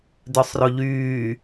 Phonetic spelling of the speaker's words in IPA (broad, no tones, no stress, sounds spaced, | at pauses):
d œ sˤ r o ʎ yː